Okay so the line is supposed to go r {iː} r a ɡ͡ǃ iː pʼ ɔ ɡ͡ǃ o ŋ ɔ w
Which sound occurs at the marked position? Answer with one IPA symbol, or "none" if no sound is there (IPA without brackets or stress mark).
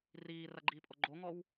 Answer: iː